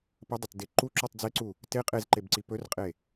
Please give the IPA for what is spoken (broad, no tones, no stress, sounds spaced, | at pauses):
p ə dˤ ɐ t d e ǃ u ǁ u tˤ d͡z e ǀ u | t e qʼ e z ǃ e b ǀ i p ɵ r qʼ e